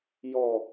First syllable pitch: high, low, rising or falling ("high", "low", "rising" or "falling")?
low